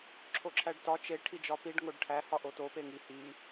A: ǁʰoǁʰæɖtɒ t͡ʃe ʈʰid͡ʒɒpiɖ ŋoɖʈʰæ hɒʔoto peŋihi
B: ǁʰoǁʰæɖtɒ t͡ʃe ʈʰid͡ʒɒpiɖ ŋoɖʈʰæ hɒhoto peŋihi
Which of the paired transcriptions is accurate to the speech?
A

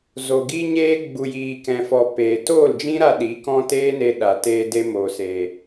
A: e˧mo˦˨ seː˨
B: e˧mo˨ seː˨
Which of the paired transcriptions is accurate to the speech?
B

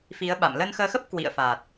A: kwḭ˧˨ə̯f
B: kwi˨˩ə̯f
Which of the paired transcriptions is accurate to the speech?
A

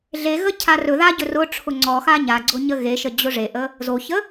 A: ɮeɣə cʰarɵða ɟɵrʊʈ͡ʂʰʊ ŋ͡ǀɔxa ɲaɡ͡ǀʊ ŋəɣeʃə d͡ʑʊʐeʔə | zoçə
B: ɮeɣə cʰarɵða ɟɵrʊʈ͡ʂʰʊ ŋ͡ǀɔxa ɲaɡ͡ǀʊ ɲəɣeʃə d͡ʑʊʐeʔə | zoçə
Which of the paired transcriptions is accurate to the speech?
B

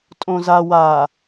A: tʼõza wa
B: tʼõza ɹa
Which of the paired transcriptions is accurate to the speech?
A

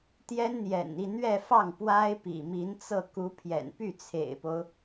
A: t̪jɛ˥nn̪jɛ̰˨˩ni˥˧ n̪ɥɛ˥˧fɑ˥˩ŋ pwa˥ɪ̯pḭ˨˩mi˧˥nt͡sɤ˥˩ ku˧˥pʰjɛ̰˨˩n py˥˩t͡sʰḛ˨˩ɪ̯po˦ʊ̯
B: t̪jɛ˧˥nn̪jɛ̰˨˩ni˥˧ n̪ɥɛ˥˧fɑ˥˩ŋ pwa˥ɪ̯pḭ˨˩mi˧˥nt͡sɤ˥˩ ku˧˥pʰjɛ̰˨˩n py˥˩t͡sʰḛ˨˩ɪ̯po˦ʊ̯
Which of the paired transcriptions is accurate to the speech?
A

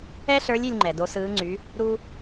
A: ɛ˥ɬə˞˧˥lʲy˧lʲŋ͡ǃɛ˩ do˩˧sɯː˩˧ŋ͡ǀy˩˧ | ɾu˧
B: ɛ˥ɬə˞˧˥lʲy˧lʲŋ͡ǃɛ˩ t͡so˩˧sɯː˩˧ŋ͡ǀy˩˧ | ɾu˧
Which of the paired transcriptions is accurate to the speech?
A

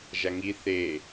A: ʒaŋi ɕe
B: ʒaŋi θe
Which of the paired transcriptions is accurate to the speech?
B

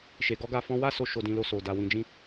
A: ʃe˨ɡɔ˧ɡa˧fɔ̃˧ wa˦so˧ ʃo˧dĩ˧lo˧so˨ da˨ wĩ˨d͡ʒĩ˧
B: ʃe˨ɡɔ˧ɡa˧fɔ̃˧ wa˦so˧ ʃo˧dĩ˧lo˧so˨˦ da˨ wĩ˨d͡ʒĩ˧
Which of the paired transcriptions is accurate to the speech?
A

